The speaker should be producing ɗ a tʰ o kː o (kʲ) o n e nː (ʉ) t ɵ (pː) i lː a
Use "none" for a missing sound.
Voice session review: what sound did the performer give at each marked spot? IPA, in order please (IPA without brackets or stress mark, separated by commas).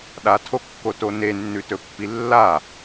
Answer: t, ʉ, pː